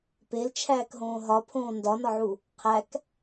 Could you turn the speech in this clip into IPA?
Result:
p e l t͡ʃʰ æː k ɦ õː ɦ ɒ pʰ õː n d ɒ n ɒ ʕ u | qʰ æ k

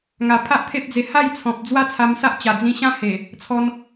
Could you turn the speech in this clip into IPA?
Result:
ŋ a˨˩ pʰ a˦ ʔ t̪ʰ e˦ p̚ d͡z e˧ h a˥˧ j t͡sʰ ɔ̃˨ p̚ d͡z w a˥˧ t͡sʰ a˧ m s a˦ ʔ t͡ɕ a˨˩ d͡z ĩ˧ ɕ ã˦ h e˨˩ | t͡sʰ ɔ˧ n

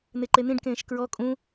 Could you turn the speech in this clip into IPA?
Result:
n̪ e ǃ e n̪ ĩ ɖ k ẽː ʃ k ɹ ɔ kʼ ũ

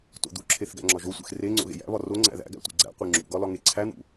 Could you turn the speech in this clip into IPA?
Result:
t o̰ d̪ u ǁʰ e θ ɡ æ̰ ŋ͡ǁ ɒ ʒ o sʷ ḛ x r e ŋ͡ǀ o̰ ɣ ḛ j æ̰ β ɒ r o ŋ͡ǀ æ̰ ð æ̰ ɡ æ̰ tʷ ḭ ɡ͡ǀ æ̰ qʷ e ŋ͡ǁ ṵ ɡ ɒ l ɒ ŋ e ǀʰ æ n̪ ṵ

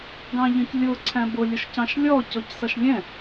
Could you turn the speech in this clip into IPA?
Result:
ɡ ɑ̃ ʎ ə̃ c lʲ ʊ ǀʰ æ̃ b ʊ lʲ ʊ ʃ c ɑ̃ ʃ lʲ ɔ c ɔ c s ʌ ʃ lʲ ɛ̃

